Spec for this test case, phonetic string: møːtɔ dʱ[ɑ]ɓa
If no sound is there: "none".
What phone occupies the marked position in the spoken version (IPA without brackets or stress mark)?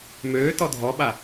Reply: ɔ